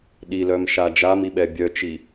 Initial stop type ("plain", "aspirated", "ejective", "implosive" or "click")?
implosive